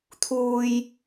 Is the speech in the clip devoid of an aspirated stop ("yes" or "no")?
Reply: no